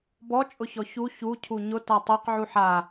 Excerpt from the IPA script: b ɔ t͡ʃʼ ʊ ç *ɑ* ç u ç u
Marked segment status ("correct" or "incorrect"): incorrect